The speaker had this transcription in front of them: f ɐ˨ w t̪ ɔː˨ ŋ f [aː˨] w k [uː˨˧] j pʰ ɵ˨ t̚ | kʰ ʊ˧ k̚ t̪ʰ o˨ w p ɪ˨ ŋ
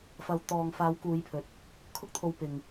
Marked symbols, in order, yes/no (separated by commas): no, yes